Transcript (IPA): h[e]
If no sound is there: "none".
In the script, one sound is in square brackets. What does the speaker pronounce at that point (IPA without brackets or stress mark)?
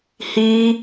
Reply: i